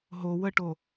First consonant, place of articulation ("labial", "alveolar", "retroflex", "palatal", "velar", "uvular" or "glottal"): glottal